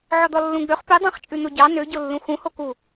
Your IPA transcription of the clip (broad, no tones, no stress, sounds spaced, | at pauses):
ʕ ɔ d̪ ɔ lː ũ ɡ͡b ø χ p ʉ dˤ ɑ̃ χ t͡ʃʼ ʉ n̪ o ɟ ɑ n ø ɟ o lː ũ x ũ h o k u